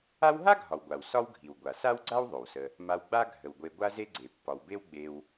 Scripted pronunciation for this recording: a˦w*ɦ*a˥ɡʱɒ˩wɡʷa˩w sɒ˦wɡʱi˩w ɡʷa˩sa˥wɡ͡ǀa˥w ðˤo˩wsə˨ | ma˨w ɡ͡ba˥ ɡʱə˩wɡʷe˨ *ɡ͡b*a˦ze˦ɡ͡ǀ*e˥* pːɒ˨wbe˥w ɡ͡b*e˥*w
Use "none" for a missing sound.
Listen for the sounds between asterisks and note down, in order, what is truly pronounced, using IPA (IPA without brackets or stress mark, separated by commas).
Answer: ɦ, ɡʷ, e˩, e˨